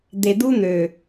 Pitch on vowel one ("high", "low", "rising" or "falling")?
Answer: low